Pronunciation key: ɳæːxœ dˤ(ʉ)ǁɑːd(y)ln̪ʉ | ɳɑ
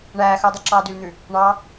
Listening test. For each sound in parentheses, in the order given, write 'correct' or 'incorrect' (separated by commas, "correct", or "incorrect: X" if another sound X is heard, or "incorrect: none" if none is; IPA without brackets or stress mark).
correct, correct